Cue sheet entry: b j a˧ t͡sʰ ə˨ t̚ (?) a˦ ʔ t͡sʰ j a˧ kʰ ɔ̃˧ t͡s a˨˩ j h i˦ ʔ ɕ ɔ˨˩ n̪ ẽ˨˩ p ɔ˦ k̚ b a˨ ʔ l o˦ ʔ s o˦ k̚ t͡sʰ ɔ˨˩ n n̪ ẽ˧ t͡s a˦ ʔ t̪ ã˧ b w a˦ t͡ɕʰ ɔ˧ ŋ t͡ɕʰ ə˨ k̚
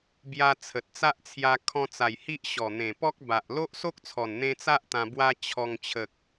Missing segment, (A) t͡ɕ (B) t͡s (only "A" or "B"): B